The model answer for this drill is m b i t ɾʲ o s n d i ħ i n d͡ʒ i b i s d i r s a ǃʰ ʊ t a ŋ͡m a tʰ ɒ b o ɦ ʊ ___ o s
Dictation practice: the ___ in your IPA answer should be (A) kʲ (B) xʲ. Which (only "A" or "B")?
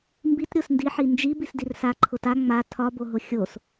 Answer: B